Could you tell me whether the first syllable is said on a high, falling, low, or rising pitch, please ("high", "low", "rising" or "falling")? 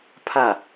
falling